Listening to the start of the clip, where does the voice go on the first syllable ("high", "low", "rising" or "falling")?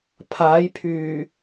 rising